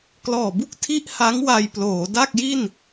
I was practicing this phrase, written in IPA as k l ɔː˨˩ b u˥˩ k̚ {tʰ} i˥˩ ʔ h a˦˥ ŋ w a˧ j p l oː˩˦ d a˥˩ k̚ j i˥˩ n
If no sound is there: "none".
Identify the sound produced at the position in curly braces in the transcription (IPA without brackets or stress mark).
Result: tʰ